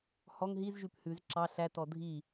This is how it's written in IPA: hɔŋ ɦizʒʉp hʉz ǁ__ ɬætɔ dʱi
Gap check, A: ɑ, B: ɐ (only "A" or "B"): A